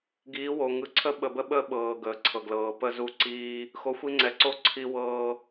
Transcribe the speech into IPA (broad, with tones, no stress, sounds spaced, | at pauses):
ɡ iː˨˦ w o˨ ŋ ɯ˨ ǀʰ ə˦ ɓ ə˨ b ə˦ ɓ ə˦ ɓ ɤː˨ ɡ əː˨ ǀʰ ɤ˨ ɡ l ɤː˨ p ə˦˨ z u˦ ǀ iː˦ | x o˨ xʷ i˦ ŋ͡ǀ ɛ˨ ǀ o˦ ǀʰ i˦ w ɤː˦